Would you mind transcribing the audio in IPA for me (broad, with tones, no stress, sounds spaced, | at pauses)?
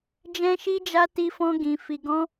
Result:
d͡ʒ ɛ̃˦ ʃ i˦ d͡ʒ a˦ t i˦ f ɔ̃˦ ɡ ĩ˧ f i˧ ɡ ɔ̃˦